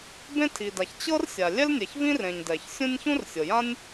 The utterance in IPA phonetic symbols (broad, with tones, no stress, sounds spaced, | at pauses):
b ẽ˥ tʰ i˩ d a˩ ç t͡ɕ ɤ˥ r sʲ a˩ lʲ ɛ˥ l nʲ ɛ˩ ç v ĩ˥ r ẽ˩ ɲ d ɛ˩ ç sʲ ũ˥ nʲ ç ũ˥ r sʲ ɤ˩ j ã˥ nʲ